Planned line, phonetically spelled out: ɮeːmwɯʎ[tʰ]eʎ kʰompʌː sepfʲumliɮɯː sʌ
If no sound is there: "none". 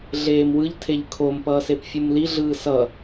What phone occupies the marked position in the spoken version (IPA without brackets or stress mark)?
tʰ